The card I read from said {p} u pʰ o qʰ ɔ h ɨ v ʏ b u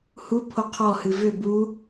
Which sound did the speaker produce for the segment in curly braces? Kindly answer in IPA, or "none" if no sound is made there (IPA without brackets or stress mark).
h